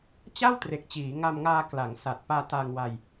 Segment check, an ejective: absent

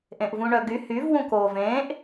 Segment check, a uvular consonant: absent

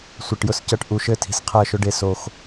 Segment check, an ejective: absent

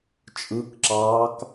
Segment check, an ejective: present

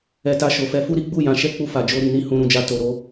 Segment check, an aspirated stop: absent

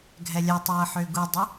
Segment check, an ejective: absent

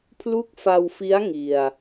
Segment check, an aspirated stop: present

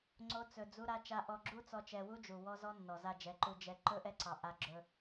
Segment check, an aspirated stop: absent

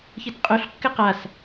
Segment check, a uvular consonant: present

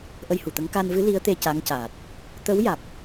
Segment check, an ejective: absent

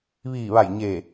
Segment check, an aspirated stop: absent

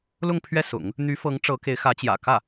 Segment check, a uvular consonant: absent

